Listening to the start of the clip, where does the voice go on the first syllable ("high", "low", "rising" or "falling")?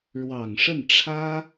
low